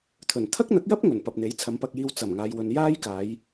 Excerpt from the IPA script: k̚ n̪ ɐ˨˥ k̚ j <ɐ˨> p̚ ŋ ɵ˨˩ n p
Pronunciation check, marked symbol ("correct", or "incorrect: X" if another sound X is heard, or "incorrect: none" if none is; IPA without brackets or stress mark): incorrect: ɐ˥